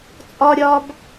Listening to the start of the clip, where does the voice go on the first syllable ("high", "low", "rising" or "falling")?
high